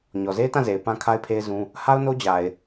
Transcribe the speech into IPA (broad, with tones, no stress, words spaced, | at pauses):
ɲɔ˨ze˦ɪ̯tã˦˨ze˨ɪ̯ pã˦kʰa˦ɪ̯pʰe˦ɪ̯zũ˦ | ha˦ʊ̯no˦d͡ʑa˨ɪ̯